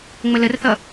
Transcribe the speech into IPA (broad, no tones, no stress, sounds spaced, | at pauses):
ŋ͡m ə l ə r θ ʌ